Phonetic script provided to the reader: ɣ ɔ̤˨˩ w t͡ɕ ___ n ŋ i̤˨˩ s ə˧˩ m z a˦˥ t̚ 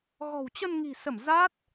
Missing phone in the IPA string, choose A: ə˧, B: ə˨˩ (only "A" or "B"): A